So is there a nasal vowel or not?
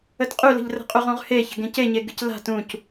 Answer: yes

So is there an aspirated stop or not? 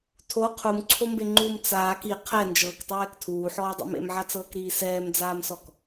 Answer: yes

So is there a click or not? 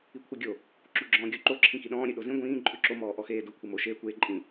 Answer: yes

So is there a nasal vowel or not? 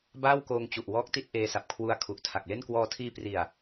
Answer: no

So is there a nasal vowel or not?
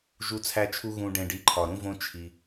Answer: yes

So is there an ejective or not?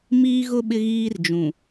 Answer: no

